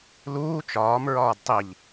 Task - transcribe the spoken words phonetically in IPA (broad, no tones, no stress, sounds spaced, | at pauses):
l uː t͡ʃ ɒː m ɹ ɒː d tˤ i ʎ